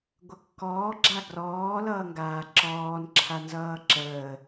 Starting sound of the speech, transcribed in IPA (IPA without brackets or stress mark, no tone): ɡʷ